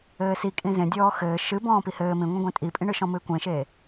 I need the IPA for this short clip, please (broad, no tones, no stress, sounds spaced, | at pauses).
ɘː s i kʼ ĩ z ẽ dʲ ɔː x ɘː ʃ ɨ b ɔ̃ː p i h ɘː m ĩ ŋʷ ĩ ɡʷ ẽ tʼ i pʼ ĩ ɳ ɨ ʃ ɔ̃ m ɨ ɪ̯ kʷ ẽ ʃ eː